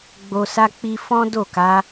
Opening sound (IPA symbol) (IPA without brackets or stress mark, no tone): ɡ͡b